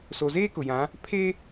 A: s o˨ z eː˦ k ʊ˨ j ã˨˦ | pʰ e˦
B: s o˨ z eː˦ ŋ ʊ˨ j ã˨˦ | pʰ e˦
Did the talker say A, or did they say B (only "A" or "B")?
A